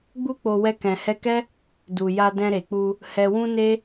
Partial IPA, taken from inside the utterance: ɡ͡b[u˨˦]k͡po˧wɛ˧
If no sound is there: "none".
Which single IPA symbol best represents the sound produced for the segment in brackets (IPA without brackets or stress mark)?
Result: u˦